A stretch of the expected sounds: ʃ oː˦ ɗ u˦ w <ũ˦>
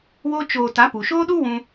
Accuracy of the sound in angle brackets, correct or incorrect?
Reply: correct